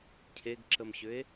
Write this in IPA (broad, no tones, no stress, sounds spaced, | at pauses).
cʰ e ɡ ǁ ə m ɕ ʏ e̯